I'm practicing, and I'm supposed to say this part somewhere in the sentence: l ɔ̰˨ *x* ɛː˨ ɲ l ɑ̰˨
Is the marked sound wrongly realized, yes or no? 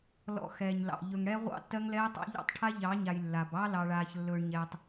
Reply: no